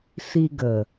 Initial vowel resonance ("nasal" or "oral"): oral